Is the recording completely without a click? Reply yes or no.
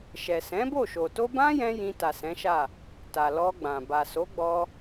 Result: yes